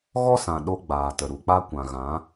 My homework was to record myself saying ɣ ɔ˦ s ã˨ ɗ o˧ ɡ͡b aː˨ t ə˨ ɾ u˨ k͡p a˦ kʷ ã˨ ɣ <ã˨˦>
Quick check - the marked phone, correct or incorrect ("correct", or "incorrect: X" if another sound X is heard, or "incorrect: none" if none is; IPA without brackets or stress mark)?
correct